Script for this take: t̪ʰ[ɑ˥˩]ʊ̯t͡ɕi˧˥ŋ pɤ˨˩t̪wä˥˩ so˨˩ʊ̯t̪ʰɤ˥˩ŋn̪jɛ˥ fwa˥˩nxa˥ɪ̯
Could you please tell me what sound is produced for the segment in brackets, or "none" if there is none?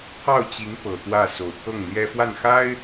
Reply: ɑ˥˩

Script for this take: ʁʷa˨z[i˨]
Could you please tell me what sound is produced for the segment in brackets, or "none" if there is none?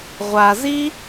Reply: i˦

